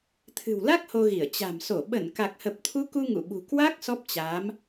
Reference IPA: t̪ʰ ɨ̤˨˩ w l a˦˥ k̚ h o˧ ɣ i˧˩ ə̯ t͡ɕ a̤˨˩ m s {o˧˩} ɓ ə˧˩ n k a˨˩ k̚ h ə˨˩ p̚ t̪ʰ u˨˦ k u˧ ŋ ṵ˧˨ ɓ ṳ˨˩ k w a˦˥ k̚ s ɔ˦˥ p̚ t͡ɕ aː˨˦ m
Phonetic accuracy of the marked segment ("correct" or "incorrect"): correct